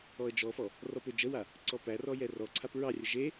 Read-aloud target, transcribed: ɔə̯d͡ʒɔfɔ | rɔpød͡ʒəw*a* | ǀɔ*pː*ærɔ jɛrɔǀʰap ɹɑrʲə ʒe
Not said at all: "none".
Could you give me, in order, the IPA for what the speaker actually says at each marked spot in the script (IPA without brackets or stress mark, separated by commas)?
a, p